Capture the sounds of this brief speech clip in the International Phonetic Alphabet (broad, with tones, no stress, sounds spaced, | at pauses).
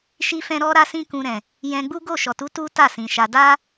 ʃ i˧ f ɛ̃˧ ɾ ɔ˦ ɾ a˦ s ĩ˦ k ũ˧ ɾ ɛ̃˨ | j ɛ̃˧ ɡ͡b u˦ ɡ o˦˨ ʃ ɔ˨ t u˨˦ t u˦ t a˦˨ s ĩ˨ ʃ a˧ d a˦